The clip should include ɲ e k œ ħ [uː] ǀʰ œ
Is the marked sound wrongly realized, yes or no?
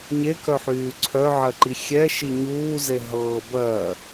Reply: yes